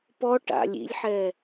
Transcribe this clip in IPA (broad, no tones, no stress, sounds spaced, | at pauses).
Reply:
p ɔ ʈ a̰ lʲ ḭ lʲ ħ ɛ